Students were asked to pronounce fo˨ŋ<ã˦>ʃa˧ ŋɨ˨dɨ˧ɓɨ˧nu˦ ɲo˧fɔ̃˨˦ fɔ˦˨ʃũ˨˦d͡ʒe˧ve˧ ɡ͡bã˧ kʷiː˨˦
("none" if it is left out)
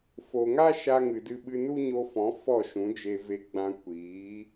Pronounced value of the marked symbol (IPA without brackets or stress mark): a˦